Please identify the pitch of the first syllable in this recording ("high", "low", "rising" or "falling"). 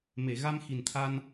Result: low